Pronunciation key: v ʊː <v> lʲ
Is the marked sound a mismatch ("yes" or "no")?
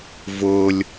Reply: yes